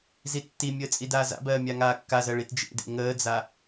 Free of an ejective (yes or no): no